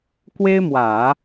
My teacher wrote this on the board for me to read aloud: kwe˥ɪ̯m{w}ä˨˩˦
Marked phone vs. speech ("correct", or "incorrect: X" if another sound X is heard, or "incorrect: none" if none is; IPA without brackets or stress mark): correct